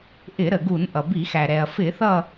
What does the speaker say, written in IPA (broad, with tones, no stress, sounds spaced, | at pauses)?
ʔ ɪ˧˩˧ ɾ ə˩ ɡ u˧˩˧ n ʔ ʌ˩ b i˧˩˧ x æ˩ ɾ ɛ˩ ɐ̯ f ɪ˧˩˧ θ ʌ˦˨